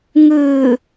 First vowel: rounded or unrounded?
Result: unrounded